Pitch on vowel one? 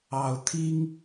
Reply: low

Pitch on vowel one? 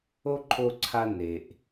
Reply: high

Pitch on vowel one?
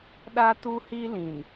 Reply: high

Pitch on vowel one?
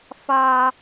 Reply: low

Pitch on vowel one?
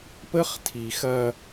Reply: high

